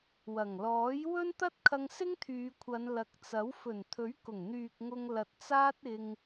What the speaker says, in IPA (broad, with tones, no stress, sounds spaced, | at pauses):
w ɐ˨˩ ŋ l ɔː˨˥ j w ɵ˥ n t̪ ɐ˥ t̚ kʰ ɐ˧ ŋ s ɪ˥ ŋ t̪ʰ yː˨˧ kʷʰ ɐ˨˧ n l ɐ˨˥ k̚ t͡s ɐ˨˥ w f ɵ˨˩ n t̪ʰ ɵ˨˥ ɥ k ʊ˨˩ ŋ n̪ yː˨ k̚ ŋ ʊ˧ ŋ l ɐ˨ t̚ t͡s aː˥ t̚ ɪ˧ ŋ